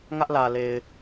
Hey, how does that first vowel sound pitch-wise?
high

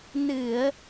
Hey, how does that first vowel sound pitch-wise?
low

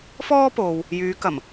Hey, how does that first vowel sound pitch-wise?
high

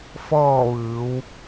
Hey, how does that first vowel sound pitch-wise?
falling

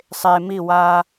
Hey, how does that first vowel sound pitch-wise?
low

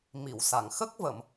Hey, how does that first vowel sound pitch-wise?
low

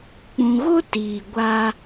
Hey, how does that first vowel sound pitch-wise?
low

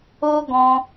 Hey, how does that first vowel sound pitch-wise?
high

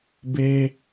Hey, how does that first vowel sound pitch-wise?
high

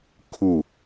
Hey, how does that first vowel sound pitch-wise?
falling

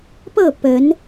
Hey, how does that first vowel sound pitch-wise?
falling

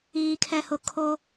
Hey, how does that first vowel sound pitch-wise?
low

